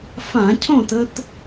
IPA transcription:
f ã˧˩˧ cʰ õ˥˨ t ə˧ t

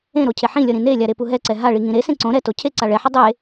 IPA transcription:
ẽ ɾ o cʰ e ħ ĩ lʲ ʌ ɾ ĩ n e lʲ a ɾ e p u ɦ ɛ ǀ ɛ ɦ a ɭ i ŋ ĩ ɾ e s ẽ ǀ õ ɾ ɛ t o cʰ e ǀ a ɭ ɛ ħ ʌ dˤ e

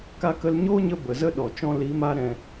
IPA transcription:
k a˧ k ə˧ l ɲ oː˦ ɲ ə˧ b ə˨ z ə˦ ɗ ɔ˨ t͡ʃ ɔ̃˧ l i˨˦ m a˧ ɾ ɛ̃˨

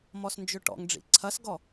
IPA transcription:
m ɔ s n d͡ʒ ʏ ʈ ɔ̰ ŋ ɖ͡ʐ ḭ ǀʰ ɐ s ɡ ɔ

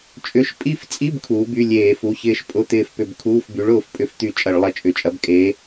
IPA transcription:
t͡ʃʼ ʏ˧˥˧ ʃ pʼ i˦˨ f t͡sʼ i˧˥˧ b kʰ uː˨˥ b y˧˥˧ lʲ eː˧˩˧ f u˩˧˩ ç ɪː˦˨ ʃ pʼ ʊ˧˥˧ t̪ ɪː˦˨ f p ʏ˦˨ b kʰ uː˧˥˧ f b y˨˥ ɭ ʊː˦˨ f pʼ ʏ˧˩˧ f t̪ y˧˩˧ t͡ʃʼ ɐ˧˩˧ ɭ lˠ ɐ˦˨ t͡ʃʼ ʏ˩˧˩ t͡ʃʼ ɐ˨˥ b kʼ e˨˥

